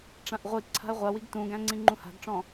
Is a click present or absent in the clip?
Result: present